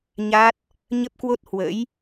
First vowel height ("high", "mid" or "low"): low